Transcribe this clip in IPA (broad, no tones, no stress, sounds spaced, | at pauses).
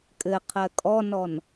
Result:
kʼ ɘ qʰ ɜ kʼ ɔ n ɔ n